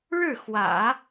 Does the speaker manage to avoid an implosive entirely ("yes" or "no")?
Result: yes